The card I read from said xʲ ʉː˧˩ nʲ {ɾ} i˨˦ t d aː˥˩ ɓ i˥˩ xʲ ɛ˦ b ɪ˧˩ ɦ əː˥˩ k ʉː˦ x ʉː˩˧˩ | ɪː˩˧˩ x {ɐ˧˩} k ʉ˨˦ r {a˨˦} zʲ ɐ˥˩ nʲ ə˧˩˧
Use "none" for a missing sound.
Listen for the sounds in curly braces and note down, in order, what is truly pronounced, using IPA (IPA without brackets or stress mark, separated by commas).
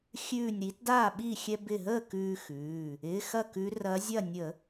ɾ, ɐ˥˩, ɐ˨˦